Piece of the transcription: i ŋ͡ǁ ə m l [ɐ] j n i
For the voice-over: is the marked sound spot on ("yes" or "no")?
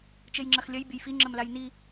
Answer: no